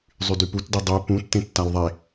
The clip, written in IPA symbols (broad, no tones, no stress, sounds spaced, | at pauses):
zˤ y d y p u t d i dˤ y p ũ tː ẽ tː a l ðˤ e